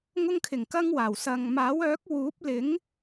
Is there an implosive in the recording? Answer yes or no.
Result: no